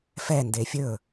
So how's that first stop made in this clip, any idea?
plain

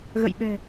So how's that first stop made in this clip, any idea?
implosive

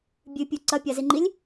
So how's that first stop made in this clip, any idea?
plain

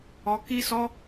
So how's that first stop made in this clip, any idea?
plain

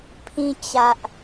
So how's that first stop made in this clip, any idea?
aspirated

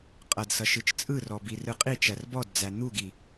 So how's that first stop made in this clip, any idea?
ejective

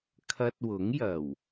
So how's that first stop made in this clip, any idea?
aspirated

